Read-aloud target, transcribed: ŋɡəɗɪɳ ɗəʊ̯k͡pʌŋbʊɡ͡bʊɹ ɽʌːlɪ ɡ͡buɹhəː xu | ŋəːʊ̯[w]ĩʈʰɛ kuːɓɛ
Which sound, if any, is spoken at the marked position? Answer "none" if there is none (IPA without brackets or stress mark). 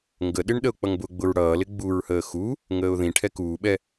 ð